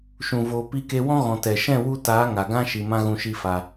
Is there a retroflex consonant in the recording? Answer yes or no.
no